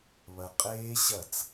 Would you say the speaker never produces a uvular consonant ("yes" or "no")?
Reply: no